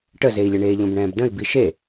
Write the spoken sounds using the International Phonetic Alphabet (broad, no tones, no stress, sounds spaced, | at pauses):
ʈ ə z e i̯ lʲ ə ɳ eː ʎ õ b ɳ ɛ̃ː b d ə̃ i̯ b i ʃ e